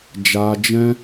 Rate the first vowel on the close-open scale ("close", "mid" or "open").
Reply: open